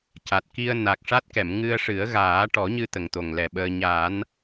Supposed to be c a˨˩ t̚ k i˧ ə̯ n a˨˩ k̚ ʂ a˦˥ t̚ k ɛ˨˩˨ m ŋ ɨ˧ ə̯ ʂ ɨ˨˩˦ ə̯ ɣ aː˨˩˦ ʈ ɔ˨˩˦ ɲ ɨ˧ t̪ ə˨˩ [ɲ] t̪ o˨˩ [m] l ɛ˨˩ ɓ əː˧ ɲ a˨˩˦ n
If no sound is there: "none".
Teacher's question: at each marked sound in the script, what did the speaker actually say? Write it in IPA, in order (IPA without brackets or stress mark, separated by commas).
ŋ, ŋ